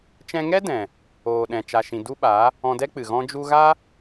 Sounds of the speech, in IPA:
t͡ʃ ɛ̃˧ ŋ ɛ˦ d ɛ̃˨ | oː˨ ɗ ɛ̃˨ t͡ʃ a˨ ʃ ĩ˨ d u˦ ɓ a˨˦ | ɔ̃˧ d ɛ˦ k͡p ɨ˨ ɣ ɔ̃˧ d͡ʒ u˧ ɣ a˦

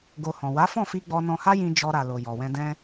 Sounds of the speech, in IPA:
ɡ o˧ h ɔ̃˨ w a˨˦ f ɔ̃˦˨ f i˧ ɡ͡b ɔ˧ n ɔ̃˧ h a˦ j ĩ˧ d͡ʒ ɔ˧ ɾ a˨ l o˨ j ɔ˨ w ɛ̃˧ d ɛ̃˦

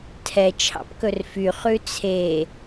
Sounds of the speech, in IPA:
tʰ ɛ t͡ʃʰ ɑ̰ p k ɵ r f y χ ʉ t͡sʰ e

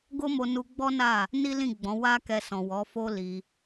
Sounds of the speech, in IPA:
ɡ o˦ m o˧ n u˧ ɡ͡b ɔ˦ n a˦˨ | n i˦ l ĩ˦˨ ɡ͡b ɔ̃˨˦ w a˦ k ɛ˧ s ɔ̃˨ w ɔ˨˦ f o˦ l i˧

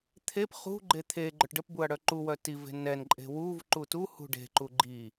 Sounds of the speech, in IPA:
t̪ʰ e p χ ṳ ɡ͡ǃ e t̪ʰ e ɡ͡ǃ œ ʈ ɖ ə p b u ɐ̯ ɽ œ ǃ u w œ t i v e̤ n ɛ n ǃʼ e̤ w u v ǃ u t u h ṳ ɖ e̤ ǃ u ɡ͡ǃ i

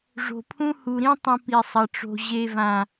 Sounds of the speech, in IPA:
ʐ o̤˨ pʰ ũ˦ h u˨ ɾ ĩ˦ tˤ ɐ̃˦ p i˨ sˤ ɐ˨ ʈ͡ʂ o̤˨ ʑ e˨ v ã˨

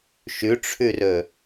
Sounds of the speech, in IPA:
ʃ ʉ ʈ͡ʂʰ ʉ r ɵ

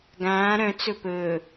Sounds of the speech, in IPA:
ɡ ãː ɾ œ̃ t͡s ɵ p ɵː

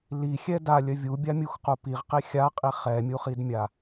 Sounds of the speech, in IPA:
l i xʲ ɛ d a lʲ œ vʲ u bʲ a mʲ u x q u p i ʁ q i xʲ a qʼ i χ ɛ mʲ u χ i d mʲ a

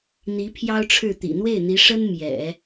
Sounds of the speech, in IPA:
n̪ i˧˥ pʰ j ɑ˥ ʊ̯ ʈ͡ʂʰ ɻ̩˥˩ t̪ ḭ˨˩ n̪ w e˥˩ ɪ̯ n̪ i˧˥ ʂ ə˥ n m j ɛ̰˨˩˦

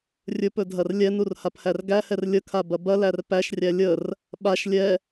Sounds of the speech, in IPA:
rʲ ɵ p ɵ dʱ ɐ r lʲ ɛ n u r h a p h æ r ɡ æ h ɛ r lʲ ə kʰ a b ɐ b ɐ l æ r p æ ʃ rʲ æ lʲ ə r | ɓ a ʃ lʲ ɛ

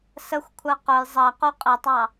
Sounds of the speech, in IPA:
s ə xʷ kʷʰ ɜ q ʊ j zˤ ɜ q u qʼ ə tˤ ɑ

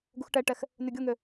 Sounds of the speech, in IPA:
ɡ u x ʈ ɛ ʈ ɛ x | n ʉ ɡʲ o ŋ ø

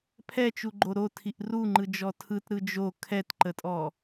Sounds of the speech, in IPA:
pʰ ɛ t͡ʃ u ɡ͡ǃ o ɾ o tʰ i ʔ r u ŋ͡ǃ ɯ d͡ʒ ɔ tʰ ɯ t ɾ ɯ d͡ʒ o kʰ ɛ t ǃ ə tʼ ɔ

